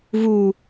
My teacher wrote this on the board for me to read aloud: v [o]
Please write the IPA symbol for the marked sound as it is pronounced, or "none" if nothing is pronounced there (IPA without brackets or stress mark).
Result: u